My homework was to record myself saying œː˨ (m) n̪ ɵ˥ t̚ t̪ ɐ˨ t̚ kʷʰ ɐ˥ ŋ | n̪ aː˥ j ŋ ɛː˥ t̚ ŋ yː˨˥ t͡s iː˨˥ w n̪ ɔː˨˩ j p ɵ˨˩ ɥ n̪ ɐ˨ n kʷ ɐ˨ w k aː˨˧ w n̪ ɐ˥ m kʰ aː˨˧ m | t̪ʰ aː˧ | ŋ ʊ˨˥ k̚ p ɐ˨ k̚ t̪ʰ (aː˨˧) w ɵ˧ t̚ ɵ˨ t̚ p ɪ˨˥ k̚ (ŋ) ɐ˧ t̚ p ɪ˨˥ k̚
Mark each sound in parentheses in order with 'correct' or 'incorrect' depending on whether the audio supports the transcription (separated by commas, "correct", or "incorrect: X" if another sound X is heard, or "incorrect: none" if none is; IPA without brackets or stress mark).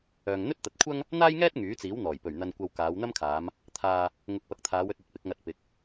incorrect: ŋ, correct, correct